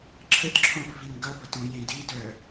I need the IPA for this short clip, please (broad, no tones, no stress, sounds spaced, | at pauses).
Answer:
ǁʰ ə t ǁʰ õ f v i n ɡ ʌ b ʌ t ũ j ẽ d i d œ